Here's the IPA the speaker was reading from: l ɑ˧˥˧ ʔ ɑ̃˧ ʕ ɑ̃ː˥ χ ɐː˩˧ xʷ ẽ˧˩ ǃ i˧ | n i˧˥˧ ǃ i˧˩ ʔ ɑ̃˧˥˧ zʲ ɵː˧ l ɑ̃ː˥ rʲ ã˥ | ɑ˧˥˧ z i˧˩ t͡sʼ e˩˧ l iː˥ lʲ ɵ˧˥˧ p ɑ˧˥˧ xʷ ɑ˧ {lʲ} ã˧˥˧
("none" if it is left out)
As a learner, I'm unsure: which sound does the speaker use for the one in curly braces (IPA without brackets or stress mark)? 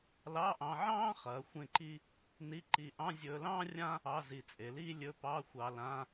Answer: l